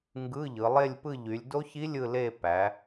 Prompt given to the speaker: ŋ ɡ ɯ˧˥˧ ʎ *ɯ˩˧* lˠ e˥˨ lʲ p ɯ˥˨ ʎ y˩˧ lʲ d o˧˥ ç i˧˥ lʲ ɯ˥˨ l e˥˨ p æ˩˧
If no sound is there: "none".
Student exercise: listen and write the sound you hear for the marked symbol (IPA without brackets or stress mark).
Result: ɯ˩˧